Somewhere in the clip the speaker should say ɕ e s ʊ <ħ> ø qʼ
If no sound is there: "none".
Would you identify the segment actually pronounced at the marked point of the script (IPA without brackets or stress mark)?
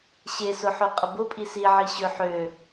ħ